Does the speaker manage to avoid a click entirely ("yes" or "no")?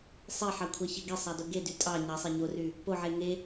yes